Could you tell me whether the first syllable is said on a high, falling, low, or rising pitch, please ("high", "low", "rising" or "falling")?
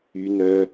low